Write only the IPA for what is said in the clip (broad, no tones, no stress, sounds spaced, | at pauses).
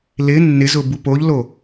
l ɪ nː ɪ z ʊ b u p o ʎ l o